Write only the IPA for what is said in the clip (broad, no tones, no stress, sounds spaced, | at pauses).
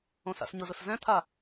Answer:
õ s a̰ s ɲ ʊ z ʊ s z ɛ̃ t̪ʰ a